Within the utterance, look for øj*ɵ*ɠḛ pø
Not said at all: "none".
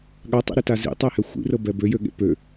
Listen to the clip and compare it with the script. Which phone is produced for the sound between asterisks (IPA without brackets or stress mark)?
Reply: ø